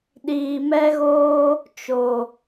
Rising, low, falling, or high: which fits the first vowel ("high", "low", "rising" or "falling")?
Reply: low